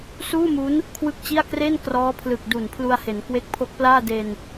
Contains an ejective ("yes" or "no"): no